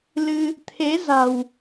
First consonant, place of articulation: alveolar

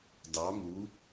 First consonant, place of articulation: alveolar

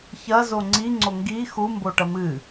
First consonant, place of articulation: palatal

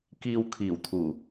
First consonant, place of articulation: velar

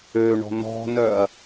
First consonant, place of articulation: retroflex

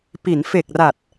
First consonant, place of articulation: labial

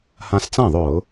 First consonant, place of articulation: glottal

